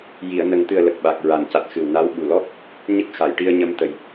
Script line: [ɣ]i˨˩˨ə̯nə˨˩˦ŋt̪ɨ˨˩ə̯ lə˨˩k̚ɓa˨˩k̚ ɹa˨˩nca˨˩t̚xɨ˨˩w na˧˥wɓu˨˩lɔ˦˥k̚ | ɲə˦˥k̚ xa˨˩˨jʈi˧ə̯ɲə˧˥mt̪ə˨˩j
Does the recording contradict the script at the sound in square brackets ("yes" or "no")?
yes